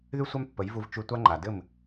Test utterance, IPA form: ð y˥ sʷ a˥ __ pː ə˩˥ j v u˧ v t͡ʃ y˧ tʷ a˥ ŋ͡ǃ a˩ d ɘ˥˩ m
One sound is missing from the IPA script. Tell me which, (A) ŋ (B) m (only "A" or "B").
B